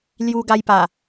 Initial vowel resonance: oral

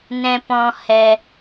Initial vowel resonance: nasal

